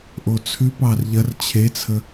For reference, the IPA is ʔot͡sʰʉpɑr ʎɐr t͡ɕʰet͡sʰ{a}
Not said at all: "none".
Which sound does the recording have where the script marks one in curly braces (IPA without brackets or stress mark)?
ə